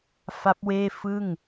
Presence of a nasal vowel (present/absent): absent